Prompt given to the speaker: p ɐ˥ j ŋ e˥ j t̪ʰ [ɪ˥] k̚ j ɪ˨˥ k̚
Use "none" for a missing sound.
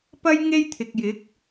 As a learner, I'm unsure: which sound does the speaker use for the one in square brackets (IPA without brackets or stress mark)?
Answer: ɪ˨